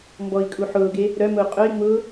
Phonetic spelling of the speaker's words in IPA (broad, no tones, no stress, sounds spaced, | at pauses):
m b ɔ i̯ kʼ u ħ ʊː ɡ e | ɾ œ m ʊː qʼ œ i̯ ŋ͡m ʊː